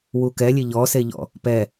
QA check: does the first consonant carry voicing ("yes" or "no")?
yes